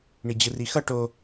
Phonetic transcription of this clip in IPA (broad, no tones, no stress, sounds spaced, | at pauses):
ɳ i d͡ʑ ɯ r i x ʌ ʈ o